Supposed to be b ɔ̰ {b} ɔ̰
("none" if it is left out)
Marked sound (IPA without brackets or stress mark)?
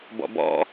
b